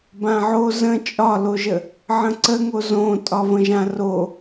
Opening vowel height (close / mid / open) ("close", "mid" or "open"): open